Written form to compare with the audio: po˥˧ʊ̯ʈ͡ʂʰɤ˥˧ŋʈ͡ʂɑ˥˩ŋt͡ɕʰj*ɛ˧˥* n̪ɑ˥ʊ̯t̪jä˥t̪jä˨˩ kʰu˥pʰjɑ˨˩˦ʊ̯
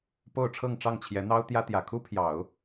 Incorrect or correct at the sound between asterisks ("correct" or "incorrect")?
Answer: correct